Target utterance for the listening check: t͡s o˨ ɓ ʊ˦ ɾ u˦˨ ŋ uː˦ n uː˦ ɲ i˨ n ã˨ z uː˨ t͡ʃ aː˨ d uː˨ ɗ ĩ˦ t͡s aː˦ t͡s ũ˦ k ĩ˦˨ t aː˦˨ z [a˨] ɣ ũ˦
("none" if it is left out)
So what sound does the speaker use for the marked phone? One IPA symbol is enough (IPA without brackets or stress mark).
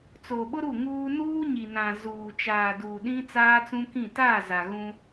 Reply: a˨